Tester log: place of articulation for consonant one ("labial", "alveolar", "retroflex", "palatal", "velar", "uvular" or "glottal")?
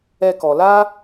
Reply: velar